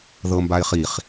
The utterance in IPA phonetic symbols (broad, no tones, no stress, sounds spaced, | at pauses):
ð ɤ m b a ɪ̯ χ i χ